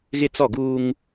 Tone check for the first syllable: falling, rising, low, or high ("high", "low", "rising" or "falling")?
high